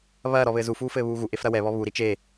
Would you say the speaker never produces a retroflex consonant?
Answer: yes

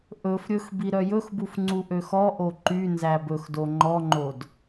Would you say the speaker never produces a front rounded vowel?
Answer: no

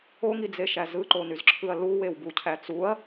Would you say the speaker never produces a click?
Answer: no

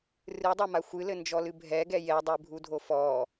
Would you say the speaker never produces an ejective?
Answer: yes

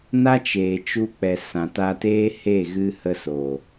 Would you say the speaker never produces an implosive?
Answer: yes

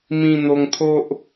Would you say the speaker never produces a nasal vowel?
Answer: no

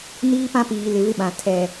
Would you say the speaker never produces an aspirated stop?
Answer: no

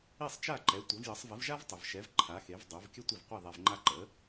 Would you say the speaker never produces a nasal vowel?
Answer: yes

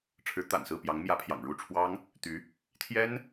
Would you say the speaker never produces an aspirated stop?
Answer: no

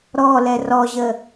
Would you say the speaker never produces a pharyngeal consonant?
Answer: yes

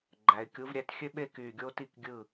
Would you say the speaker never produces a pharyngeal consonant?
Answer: yes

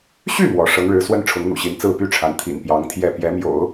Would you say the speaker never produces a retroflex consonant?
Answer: no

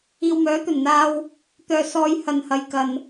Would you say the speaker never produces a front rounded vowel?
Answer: no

